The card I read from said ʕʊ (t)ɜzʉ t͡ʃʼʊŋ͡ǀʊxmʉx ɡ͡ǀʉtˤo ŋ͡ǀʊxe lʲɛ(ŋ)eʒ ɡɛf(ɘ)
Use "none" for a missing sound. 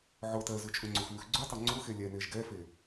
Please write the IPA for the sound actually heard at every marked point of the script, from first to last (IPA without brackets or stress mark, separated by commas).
t, n, e